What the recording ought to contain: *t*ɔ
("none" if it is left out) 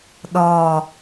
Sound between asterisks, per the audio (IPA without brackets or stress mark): ɗ